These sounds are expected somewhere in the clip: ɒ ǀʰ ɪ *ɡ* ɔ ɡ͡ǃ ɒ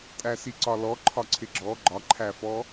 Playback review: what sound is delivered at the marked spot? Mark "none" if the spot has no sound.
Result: ɡ͡ǁ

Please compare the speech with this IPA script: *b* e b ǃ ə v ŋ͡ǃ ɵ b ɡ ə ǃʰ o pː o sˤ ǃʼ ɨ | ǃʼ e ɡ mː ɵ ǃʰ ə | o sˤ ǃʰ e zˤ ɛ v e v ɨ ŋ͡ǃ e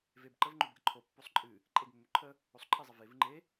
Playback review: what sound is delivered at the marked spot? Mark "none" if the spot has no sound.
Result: v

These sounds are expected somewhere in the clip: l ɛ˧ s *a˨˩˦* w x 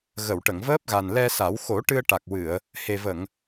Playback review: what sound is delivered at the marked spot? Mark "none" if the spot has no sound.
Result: a˨˩˦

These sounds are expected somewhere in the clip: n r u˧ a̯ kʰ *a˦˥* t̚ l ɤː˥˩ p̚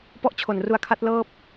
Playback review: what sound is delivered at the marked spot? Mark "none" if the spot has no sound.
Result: a˦˥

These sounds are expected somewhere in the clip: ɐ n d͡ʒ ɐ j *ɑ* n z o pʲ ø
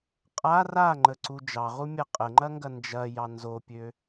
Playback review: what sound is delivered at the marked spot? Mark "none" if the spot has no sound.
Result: ɑ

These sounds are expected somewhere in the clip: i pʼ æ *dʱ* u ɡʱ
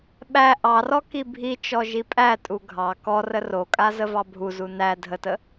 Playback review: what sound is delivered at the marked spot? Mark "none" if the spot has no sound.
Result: tʼ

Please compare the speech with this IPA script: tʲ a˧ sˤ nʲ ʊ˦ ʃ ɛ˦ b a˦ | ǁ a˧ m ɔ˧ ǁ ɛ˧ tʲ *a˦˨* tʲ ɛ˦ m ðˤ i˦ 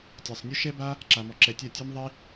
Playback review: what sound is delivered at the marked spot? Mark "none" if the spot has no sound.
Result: a˦˨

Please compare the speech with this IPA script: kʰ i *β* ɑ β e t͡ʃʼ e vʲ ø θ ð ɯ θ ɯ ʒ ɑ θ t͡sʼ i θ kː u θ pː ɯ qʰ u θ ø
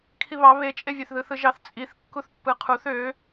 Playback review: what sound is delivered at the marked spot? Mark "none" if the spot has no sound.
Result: β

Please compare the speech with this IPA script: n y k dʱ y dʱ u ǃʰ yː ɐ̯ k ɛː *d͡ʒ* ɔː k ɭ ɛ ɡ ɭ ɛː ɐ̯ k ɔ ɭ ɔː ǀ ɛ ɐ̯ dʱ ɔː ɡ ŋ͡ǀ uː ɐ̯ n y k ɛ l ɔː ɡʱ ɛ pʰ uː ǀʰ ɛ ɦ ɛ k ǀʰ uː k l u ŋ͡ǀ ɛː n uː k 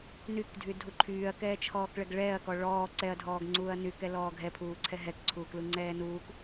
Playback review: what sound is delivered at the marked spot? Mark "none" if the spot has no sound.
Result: t͡ʃʰ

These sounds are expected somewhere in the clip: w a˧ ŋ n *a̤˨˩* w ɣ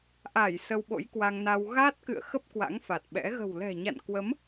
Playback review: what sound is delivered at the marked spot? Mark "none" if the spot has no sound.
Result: a˧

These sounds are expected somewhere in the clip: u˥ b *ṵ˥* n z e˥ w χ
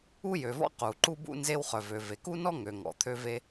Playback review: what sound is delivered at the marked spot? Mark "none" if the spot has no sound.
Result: ṵ˥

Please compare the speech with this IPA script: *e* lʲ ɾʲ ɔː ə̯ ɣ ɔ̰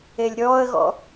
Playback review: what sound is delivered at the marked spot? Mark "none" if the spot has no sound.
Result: e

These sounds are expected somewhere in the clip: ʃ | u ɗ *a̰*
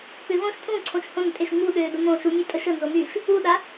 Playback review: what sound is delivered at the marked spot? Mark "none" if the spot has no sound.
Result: a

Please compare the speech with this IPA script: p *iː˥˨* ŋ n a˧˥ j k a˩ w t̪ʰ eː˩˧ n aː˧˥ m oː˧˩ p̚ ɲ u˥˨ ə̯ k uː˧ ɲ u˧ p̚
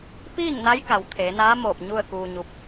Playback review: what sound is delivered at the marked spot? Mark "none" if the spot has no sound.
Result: iː˥˨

